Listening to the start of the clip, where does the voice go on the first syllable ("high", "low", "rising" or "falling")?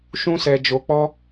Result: high